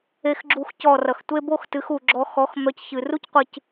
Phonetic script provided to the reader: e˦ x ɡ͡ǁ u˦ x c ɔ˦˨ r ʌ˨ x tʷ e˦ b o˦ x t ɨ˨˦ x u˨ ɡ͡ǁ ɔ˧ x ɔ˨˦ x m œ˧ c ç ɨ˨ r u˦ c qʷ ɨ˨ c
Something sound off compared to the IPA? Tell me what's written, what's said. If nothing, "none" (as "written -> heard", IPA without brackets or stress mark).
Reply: none